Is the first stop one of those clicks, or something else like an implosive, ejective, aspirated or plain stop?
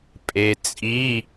ejective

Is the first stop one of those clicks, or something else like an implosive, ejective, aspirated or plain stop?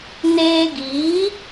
plain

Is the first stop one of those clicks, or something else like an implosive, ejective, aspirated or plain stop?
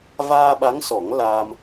implosive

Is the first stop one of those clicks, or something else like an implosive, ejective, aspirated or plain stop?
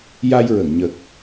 plain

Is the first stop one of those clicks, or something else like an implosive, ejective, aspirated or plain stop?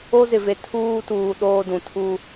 aspirated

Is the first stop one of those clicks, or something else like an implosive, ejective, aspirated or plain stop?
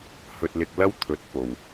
plain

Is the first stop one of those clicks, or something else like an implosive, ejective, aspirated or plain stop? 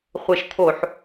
aspirated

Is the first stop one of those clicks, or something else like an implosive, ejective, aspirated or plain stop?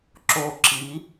click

